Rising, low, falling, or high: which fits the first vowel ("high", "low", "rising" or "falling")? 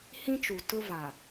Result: high